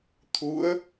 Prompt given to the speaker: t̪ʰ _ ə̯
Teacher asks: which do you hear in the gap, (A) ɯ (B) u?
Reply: B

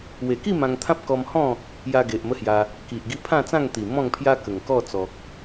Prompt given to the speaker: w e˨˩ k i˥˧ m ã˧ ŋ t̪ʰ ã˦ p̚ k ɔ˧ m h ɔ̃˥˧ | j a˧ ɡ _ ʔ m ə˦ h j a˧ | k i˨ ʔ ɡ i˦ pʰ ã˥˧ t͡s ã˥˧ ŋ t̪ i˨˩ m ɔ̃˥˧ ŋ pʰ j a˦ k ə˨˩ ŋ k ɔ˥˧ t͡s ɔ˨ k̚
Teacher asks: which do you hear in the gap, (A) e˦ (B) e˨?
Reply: B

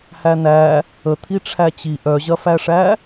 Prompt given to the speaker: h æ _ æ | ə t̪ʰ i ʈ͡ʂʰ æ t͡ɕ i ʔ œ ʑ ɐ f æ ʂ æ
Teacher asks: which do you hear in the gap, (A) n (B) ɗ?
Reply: A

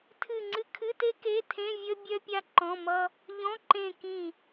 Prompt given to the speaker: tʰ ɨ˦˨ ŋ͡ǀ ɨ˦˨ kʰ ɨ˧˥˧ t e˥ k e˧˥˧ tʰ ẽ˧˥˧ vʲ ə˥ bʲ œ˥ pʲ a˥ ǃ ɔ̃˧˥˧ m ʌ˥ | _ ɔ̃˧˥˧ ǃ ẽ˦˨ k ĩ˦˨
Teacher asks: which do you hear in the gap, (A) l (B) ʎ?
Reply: B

